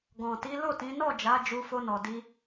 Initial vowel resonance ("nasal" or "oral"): nasal